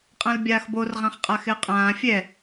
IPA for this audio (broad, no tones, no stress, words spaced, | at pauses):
qʼãlbʲaːxbor ʁãχqʼaxɪə̯qʼãː fʲɛ